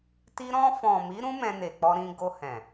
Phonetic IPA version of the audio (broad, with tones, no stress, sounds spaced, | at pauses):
t i˧ ɾ ɔ̃˧ f ɔ̃˨ m i˨˦ ɾ ũ˦ m ɛ̃˧ n e˨ k͡p ɔ˧ ɾ ĩ˧ ɡ o˧ h ɛ̃˨